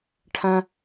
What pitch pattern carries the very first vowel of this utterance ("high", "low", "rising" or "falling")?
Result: high